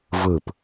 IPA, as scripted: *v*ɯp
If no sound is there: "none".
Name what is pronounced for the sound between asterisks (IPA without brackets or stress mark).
v